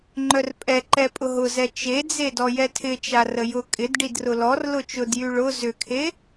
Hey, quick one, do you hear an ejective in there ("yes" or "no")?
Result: yes